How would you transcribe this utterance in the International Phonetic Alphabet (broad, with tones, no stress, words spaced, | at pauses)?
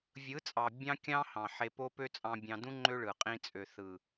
vʲɯ˨˦t͡sʼɑ˨ bʲɑ̃˦ kʲɑ̃˦hɑ̃˨ ħe˧po˦pø˦ t͡sʼɑ̃˧bʲɑ̃˧dũ˦ ŋ͡ǃø˦ɭɯ˨ qʼĩ˧t͡sʼø˨θɯ˨